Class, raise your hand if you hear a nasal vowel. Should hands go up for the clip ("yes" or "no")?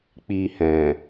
yes